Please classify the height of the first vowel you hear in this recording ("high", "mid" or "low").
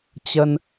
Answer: mid